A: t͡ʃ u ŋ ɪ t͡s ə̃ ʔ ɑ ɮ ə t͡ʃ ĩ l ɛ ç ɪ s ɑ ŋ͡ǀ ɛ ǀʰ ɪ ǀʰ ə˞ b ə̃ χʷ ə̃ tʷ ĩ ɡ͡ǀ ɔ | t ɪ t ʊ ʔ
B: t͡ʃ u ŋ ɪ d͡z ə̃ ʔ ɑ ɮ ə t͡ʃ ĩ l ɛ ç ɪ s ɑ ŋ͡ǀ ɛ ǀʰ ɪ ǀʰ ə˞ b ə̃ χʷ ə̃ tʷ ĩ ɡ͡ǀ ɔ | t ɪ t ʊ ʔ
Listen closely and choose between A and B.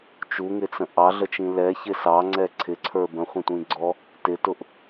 A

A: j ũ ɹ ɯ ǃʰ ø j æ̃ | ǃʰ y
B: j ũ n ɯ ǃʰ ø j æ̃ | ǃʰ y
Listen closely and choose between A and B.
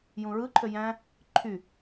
A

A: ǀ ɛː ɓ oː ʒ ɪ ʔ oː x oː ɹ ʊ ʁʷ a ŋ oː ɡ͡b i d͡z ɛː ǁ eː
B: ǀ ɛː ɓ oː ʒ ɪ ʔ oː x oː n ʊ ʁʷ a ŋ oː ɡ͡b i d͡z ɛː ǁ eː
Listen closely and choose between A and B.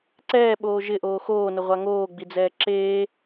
B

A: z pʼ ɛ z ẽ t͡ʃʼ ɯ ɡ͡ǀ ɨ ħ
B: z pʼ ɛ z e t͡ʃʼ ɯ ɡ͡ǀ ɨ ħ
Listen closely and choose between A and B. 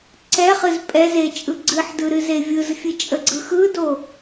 B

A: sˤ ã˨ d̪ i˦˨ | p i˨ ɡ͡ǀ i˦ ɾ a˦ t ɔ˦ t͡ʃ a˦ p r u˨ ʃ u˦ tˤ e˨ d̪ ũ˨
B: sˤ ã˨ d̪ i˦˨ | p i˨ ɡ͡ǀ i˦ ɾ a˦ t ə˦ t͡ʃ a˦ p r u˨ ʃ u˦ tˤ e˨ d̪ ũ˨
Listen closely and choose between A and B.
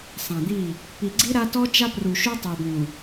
A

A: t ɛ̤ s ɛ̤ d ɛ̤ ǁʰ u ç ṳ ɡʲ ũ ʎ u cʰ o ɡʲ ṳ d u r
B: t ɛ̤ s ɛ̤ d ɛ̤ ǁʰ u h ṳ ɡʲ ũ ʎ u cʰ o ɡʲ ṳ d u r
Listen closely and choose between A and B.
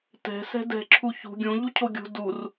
A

